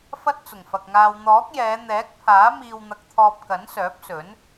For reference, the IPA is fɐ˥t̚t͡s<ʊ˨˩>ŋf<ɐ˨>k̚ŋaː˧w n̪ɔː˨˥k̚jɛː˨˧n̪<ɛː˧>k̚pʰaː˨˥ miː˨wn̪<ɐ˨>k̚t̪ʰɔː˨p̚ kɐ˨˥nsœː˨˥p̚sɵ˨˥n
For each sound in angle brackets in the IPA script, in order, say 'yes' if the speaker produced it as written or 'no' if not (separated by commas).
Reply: yes, yes, no, yes